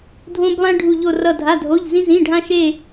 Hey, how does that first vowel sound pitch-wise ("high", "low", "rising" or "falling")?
high